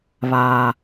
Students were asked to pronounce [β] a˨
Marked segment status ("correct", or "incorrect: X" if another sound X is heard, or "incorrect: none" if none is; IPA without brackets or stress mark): correct